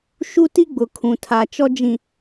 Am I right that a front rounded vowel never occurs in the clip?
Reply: yes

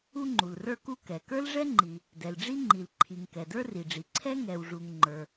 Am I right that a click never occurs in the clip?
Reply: no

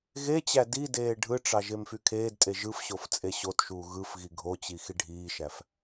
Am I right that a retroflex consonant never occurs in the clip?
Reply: no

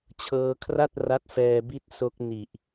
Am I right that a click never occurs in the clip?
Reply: yes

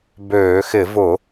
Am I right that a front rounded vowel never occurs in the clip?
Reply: no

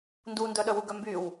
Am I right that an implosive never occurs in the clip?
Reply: no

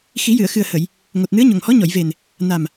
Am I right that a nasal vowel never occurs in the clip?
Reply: yes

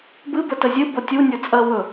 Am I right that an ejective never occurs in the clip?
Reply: no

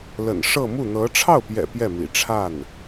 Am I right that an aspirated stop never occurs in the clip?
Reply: no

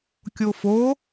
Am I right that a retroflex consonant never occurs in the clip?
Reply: yes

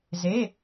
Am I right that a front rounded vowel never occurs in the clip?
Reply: yes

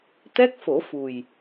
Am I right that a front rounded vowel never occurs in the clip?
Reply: yes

